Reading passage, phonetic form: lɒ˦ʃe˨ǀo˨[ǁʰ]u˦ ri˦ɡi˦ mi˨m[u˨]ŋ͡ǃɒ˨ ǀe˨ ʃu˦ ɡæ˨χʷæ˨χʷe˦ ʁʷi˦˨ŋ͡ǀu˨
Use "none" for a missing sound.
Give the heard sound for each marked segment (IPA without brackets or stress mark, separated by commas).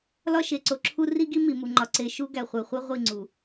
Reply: ǁʰ, u˨